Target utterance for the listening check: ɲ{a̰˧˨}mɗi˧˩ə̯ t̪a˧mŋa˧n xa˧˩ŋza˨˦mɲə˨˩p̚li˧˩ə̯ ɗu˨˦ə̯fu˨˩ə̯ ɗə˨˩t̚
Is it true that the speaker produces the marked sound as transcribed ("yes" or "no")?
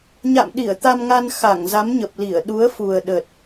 yes